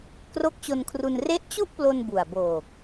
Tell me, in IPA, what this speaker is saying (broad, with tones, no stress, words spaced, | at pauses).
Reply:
kro˦˥k̚t͡ɕo˧nkʰru˧n re˦˥ʔt͡ɕu˥˩ʔplo˧n bu˨˩a̯boː˨˩k̚